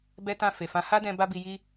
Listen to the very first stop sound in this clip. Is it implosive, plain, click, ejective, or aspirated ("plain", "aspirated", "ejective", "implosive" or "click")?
plain